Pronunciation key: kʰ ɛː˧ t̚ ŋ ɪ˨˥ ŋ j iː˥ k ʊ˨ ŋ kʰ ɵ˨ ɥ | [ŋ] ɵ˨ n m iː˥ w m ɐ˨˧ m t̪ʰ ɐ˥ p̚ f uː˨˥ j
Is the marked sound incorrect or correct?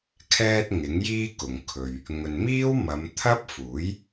correct